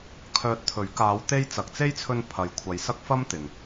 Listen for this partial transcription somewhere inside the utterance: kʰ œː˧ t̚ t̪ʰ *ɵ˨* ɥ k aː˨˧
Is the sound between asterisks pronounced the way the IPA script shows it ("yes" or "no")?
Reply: no